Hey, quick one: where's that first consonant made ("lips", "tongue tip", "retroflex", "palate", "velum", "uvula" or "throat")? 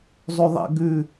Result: tongue tip